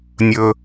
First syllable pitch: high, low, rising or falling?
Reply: low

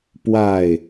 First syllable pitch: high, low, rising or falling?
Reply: falling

